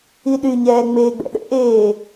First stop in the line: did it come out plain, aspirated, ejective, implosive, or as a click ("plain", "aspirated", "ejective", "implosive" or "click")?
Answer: implosive